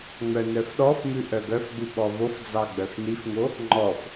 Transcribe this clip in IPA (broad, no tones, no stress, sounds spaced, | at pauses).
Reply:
ŋ͡m œ n œ f ɗ ɔ f m ʉ ʔ œ ɡ œ f ɡ͡b ʉ ɓ ɔ v o f d͡z ɑ ɡ͡b œ f n i f ŋ o | ŋ͡ǃ ɔ f